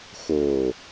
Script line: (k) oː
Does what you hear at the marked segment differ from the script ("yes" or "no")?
yes